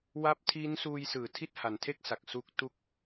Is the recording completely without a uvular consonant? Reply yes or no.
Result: yes